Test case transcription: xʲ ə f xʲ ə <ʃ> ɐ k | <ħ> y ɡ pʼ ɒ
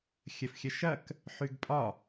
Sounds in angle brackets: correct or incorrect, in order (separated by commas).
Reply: correct, correct